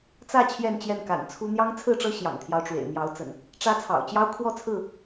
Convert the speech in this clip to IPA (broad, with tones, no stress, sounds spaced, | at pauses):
t͡s ä˥˨ t͡ɕʰ j ɛ˥˨ n t͡ɕ j ɛ˥˨ n k a̰˨˩ n t͡sʰ u˦ n̪ j ɑ˦ ŋ t͡sʰ ɹ̩˥˨ ʈ͡ʂ ɤ˦ ɕ j ɑ̰˨˩ ŋ t̪ʰ j ɑ˦ ʊ̯ ʈ͡ʂ w ḛ˨˩ ɪ̯ m j ɑ˨˦ ʊ̯ t͡s ə̰˨˩ n | ʈ͡ʂ ä˦ t͡sʰ ɑ̰˨˩ ʊ̯ t͡ɕ j ɑ˦ ʊ̯ kʰ w ɔ˥˨ t͡sʰ ɹ̩˥˨